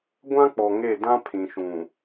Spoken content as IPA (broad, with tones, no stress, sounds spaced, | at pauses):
ɡʷ ã˦ k͡p ɔ˨ ŋ e˦˨ d ã˦ pʰ ĩ˨ ʃ ũ˨